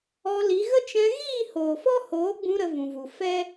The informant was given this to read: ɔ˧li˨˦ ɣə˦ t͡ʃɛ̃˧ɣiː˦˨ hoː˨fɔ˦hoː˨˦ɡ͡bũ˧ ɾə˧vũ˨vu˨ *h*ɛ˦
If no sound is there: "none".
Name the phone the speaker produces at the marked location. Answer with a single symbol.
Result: f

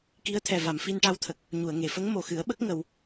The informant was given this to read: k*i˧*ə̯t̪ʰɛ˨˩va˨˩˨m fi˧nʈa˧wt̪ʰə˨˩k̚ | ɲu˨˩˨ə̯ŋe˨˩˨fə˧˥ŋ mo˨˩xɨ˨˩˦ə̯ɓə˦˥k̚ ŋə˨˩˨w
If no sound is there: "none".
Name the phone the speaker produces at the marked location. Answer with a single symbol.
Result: i˧˥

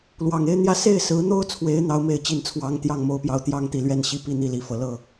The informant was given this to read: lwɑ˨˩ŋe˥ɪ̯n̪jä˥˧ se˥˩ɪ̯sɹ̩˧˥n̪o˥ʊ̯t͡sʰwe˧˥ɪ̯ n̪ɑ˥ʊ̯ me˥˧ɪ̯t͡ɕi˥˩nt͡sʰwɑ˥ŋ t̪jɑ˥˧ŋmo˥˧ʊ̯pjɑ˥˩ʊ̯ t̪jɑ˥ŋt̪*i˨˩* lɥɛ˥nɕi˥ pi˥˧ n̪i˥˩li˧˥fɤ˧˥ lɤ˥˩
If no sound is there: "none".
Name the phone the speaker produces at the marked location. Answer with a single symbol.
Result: i˨˩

